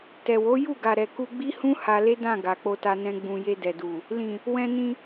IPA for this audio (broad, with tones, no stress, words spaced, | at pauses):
tɛ˨wo˨˦ ju˦˨ɡa˨ɾɛ˨ ku˧ ɡ͡bi˦hũ˦ ha˧le˦dã˦˨ ɡa˨k͡po˧ta˧nɛ̃˧ ɡ͡bũ˨je˧ dɛ˨du˨ | lĩ˨ | wɛ̃˧nĩ˧